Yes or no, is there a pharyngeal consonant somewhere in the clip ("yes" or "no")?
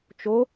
no